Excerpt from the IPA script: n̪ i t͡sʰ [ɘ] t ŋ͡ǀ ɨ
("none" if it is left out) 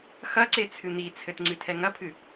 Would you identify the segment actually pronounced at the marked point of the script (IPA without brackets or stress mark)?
ɘ